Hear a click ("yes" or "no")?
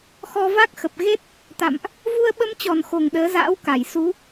no